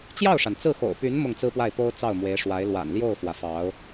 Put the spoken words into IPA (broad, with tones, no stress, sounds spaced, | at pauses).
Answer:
t͡ɕ j ɑ˥˩ ʊ̯ ʂ a˩ n t͡s ɹ̩˥˩ x o̰˨˩ ʊ̯ p y˧˥ n m ʊ˥˩ ŋ t͡s ɹ̩˥ p w a˥˩ ɪ̯ p o˥ ʊ̯ t͡s ɑ˥˩ ʊ̯ m w e˧˥ ɪ̯ ʂ w a˧˥ ɪ̯ l w a̰˨˩ n l j o˥˩ ʊ̯ f w ä˩ f ɑ˧˥ ʊ̯